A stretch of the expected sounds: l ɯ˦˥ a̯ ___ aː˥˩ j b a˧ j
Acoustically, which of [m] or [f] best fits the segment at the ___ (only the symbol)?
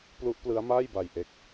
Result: m